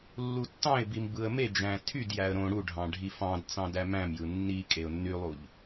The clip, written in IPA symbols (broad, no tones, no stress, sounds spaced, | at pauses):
lː u tː ɑ̃ ɪ̯ b i m b ɯ ə̯ m e d͡ʒ æ̃ tʰ y d j æ ə̯ ɾ õ ɽ u ɖʱ ɑ̃ ɖʱ i f ɑ̃ d t͡s ɑ̃ d æ m æ̃ m j ɯ nː i kʼ e ʊ̯ nː y lˠ u ʎ